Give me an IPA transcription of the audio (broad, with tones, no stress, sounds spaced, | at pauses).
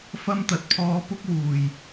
f ɐ˥ m t̪ ɐ˨ t̚ pʰ ɔː˧ p ʊ˥ k̚ w uː˨˩ j